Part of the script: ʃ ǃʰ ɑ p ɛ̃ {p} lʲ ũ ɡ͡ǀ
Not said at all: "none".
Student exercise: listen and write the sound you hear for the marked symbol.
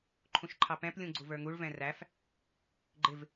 p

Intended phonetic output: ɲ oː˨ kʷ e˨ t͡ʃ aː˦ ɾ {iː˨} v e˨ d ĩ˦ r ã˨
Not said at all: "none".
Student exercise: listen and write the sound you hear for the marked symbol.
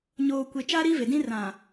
iː˦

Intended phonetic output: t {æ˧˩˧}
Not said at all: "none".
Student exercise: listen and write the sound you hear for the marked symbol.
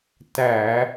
æ˧˩˧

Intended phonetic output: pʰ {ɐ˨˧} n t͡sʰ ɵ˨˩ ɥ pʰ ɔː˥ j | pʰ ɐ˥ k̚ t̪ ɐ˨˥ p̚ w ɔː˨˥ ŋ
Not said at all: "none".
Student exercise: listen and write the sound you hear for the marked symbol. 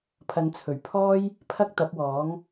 ɐ˨˧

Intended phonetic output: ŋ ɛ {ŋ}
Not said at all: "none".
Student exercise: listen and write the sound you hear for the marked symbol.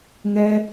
none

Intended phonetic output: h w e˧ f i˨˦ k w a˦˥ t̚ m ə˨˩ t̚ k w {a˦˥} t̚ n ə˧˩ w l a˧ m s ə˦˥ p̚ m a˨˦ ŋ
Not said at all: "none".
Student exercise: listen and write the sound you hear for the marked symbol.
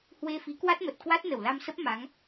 a˦˥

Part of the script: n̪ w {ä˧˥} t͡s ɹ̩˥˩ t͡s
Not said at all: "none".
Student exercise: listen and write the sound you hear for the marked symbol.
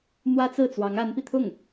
ä˥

